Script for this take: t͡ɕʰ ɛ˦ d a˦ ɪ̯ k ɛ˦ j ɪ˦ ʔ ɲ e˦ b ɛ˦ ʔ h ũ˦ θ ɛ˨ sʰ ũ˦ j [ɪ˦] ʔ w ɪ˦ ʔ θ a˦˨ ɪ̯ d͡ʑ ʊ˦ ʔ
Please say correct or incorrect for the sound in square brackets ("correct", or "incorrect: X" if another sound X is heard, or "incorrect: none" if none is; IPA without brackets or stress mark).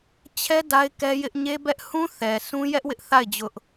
incorrect: ɛ˦